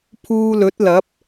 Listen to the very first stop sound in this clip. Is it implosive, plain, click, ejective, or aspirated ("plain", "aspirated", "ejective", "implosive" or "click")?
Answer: aspirated